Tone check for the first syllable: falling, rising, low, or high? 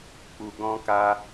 low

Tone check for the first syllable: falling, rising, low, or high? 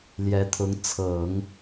rising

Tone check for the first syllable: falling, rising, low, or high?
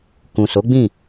low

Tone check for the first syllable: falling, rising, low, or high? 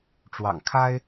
low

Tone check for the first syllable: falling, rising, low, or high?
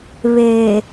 low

